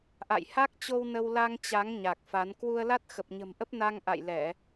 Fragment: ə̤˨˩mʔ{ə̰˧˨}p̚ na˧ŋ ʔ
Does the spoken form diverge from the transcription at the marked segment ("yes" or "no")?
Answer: yes